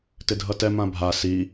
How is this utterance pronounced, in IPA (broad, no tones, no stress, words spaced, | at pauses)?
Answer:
tɪdʱʌtɛ mãbʱa si